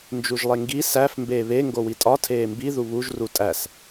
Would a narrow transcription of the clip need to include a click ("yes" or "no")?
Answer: no